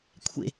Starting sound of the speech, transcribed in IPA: kʷʰ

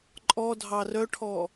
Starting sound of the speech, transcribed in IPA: ǃʼ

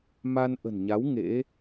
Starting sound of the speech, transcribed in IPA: m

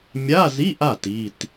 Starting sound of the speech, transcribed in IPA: mʲ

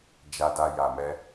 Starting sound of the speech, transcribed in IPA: d͡ʒ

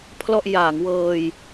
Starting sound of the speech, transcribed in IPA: pʰ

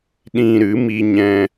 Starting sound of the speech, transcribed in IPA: ɗ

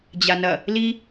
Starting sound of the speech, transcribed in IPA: d͡ʑ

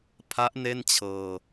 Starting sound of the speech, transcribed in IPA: pʰ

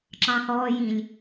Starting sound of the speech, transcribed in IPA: ǁ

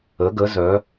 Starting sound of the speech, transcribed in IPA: ə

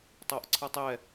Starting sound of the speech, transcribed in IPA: tˤ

